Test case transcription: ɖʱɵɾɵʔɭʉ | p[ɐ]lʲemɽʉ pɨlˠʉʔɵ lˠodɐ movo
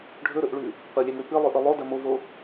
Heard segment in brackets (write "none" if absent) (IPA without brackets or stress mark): ɐ